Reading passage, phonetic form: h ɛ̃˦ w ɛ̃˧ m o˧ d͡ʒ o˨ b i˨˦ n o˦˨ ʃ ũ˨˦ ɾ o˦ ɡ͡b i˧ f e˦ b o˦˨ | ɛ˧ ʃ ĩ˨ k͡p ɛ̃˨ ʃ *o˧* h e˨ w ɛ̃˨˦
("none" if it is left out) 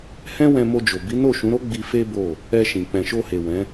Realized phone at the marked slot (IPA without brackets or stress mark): o˧